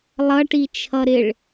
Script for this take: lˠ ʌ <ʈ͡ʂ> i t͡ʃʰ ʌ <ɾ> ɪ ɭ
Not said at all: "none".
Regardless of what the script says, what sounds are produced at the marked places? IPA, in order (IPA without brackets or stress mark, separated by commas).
ʈ, ɾ